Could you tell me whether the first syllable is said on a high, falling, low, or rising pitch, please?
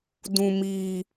high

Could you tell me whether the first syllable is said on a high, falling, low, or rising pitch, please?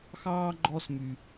high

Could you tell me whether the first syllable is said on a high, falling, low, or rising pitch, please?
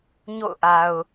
falling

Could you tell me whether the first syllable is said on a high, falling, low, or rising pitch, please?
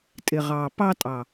low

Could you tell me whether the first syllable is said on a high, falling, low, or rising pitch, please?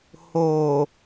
low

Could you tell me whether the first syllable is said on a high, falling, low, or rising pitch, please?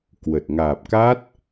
low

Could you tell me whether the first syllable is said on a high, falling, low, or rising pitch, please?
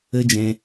high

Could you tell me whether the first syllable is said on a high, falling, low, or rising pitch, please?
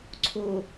low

